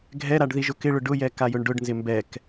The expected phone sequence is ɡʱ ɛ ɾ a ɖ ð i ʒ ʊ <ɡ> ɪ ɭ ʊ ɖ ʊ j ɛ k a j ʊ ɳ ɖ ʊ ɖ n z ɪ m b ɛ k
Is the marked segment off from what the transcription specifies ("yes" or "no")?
yes